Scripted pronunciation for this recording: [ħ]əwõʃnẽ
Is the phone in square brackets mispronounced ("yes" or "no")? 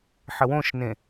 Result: no